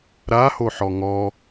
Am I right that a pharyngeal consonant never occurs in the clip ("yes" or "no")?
no